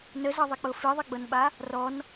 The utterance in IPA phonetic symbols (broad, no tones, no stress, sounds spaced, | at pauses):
n ə z ʌ ðˤ ɛ k͡p ɤ f i ðˤ i ɡ͡b ɤ n ɓ a | r ɔ n